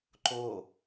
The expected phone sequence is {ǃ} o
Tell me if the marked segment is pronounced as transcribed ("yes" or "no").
yes